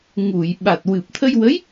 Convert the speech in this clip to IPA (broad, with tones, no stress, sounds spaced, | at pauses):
ŋ u˨˩˨ j ɓ a˨˩ t̚ w ɨ˨˩ p̚ t̪ʰ ə˧ j w ə˧˥ j